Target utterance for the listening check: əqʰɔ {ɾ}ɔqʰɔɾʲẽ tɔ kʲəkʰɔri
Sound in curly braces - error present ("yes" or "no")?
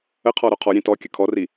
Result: no